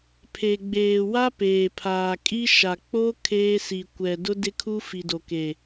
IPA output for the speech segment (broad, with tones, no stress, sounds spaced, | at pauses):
pʰ e˨ ɡ͡b eː˨ w a˦ p eː˨ pʰ aː˨ kʼ i˦ ʃ a˨ k͡p o˦ kʰ eː˦ s i˨ kʷ ɛ˨ d ʊ˦ d ɪ˦ kʰ u˦ f i˨ d o˨ k e˨